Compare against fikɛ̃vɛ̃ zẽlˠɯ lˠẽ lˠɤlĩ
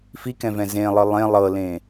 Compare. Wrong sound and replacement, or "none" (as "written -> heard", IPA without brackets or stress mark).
ĩ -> ẽ